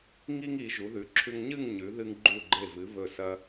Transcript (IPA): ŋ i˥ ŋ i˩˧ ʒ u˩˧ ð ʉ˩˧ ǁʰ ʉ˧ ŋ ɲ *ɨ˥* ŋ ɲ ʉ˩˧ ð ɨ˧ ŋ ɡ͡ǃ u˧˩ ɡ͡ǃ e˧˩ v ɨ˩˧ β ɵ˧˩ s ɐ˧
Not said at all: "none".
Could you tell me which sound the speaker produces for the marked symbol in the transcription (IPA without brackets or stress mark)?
ɨ˥˧